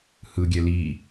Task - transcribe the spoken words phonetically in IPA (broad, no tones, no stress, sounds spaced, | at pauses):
h ɯ ɡʲ ɛ l i